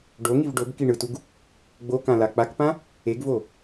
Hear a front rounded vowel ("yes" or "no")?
no